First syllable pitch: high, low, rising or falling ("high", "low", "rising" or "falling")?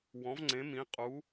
rising